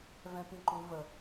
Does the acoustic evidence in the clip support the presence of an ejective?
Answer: no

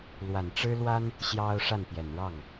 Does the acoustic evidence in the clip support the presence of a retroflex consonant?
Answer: yes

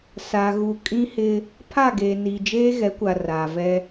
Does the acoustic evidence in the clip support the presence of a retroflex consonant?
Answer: no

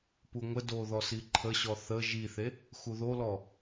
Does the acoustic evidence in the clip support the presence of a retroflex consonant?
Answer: no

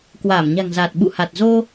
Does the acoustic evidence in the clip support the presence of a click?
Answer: no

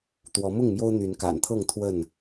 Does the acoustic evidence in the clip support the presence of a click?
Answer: no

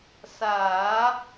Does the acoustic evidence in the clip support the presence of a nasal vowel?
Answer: no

